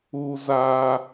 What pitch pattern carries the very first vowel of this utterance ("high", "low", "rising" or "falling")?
high